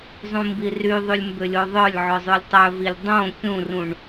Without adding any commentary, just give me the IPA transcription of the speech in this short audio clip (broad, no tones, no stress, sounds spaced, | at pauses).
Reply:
zˤ ũ m b i r y ðˤ y lʲ m b ʏ lʲ o ðˤ œ lʲ ʕ œ zˤ ʉ lʲ tˤ œ v i lʲ dˤ õ kʲ ũ r ũ ɳ